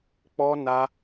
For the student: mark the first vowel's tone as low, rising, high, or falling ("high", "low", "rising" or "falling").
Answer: high